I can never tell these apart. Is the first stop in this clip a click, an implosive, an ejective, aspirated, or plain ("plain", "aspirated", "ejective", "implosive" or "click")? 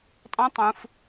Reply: ejective